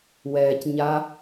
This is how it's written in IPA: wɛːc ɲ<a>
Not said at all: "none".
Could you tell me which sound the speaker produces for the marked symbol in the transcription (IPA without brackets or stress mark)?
a